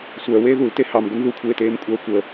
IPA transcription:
sʷ œː w eː ð u l t e h ɑ m ɡʷ ə n ð u kʷʰ eː t eː m kʷʼ œː kʷ əː

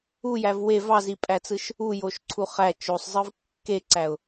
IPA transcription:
u j æ v w e v ɑ z i pʼ æ t͡s ɯ ʃ | u j o ʃ ǀʰ u χ æ t͡ʃ o sˤ zˤ ɯ v kː e ǀ æ ʊ̯

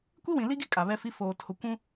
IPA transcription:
kʷ i˦ w ĩ˨ l i˦ ɡ i˦ kʼ a˨ β ɛ˦ f i˦ f oː˨ tʰ ʊ˨ kʷ ũ˦

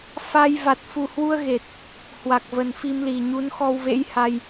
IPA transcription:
f a˧ j v a˨˩ t̚ f u˨˩ h w u˧ ə̯ ɣ e˨˩ t̚ | h w a˨˩ k̚ v ə˨˩ n f i˧ m l i˨˩ ɲ u˨˦ n x ɔ˧ w v ḛ˧˥ j h a˧ j

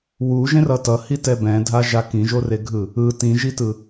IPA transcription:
w u ʒ ẽ r ʌ t ʌ h i t ɛ b ɛ̃ dʱ a ʒ a k ĩ ʒ o r e ɡʱ ɯ | ɯ t ĩ ʒ i t ɯ

